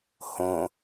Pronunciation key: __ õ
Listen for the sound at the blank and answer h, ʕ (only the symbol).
h